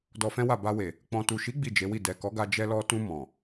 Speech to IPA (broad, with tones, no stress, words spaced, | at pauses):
dɔ˧fɛ̃˦wa˦˨ ba˧we˨ | k͡pɔ̃˨tu˨ʃi˨˦ ɡ͡bi˦˨d͡ʒe˨˦wi˦˨ dɛ˨kɔ˨˦ɡa˧ d͡ʒɛ˧lɔ˧tũ˧ mɔ̃˨